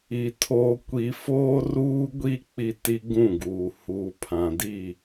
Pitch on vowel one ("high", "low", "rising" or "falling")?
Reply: low